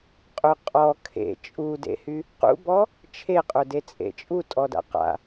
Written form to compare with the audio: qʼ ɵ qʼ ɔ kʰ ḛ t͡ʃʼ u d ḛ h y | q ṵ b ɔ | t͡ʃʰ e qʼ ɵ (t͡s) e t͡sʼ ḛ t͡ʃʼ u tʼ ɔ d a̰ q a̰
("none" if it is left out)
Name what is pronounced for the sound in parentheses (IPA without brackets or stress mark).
d